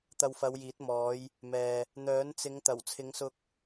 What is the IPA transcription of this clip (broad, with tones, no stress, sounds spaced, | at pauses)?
t̪ ɐ˧ w f ɐ˨˧ w j iː˨˥ t̚ m ɔː˨˧ j | m ɛː˨ | n̪ œː˨˥ n t͡s ɪ˨˧ ŋ t̪ ɐ˨˩ w t͡sʰ ɪ˨˧ ŋ s ʊ˧ k̚